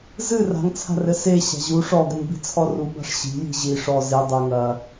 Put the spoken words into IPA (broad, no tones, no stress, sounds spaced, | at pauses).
z ɨ r a̤ ŋ t͡sʰ a̤ r ɘ s e ɕ a̤ ʑ u ʂ ɔ ɡ ɘ m b i̤ t͡sʰ ɔ r u b a̤ ʂ ɕ i̤ j i̤ ʑ i ʂ ɔ z e dˤ e ŋ ɐ